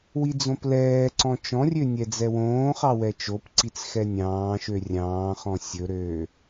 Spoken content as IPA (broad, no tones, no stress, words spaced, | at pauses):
wid͡zõplɛːǀɔ̃ t͡ʃɔ̃rʲø nʲɛd͡zɛwõːχɑ wɛt͡ʃopǀit͡s xɛnʲɑ̃ːʃø rʲɑ̃ːχɔ̃ sʲɵɾøː